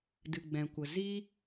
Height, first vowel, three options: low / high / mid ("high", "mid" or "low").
high